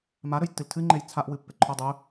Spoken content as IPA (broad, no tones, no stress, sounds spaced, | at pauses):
m a ɾ ɵ j tː ɨ l tʰ ɨ ŋ͡ǃ e j t͡sʰ a ʔ w ɨ pː e ǃʰ o dˤ ɵ